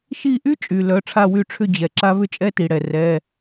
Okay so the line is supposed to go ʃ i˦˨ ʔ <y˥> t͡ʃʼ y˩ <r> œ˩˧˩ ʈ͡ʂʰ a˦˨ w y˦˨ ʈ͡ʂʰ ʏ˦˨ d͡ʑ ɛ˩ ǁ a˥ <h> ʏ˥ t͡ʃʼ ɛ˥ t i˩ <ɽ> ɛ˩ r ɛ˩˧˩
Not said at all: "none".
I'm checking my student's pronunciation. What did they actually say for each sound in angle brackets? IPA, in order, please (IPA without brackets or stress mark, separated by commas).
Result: y˥, l, β, ɽ